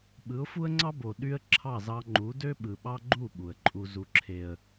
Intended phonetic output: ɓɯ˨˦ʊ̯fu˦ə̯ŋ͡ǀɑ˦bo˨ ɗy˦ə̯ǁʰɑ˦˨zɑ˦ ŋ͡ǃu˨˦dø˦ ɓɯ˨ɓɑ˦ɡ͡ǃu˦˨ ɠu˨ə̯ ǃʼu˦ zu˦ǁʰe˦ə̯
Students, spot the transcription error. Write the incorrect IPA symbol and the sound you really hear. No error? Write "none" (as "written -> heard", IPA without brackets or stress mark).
ɠ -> ɓ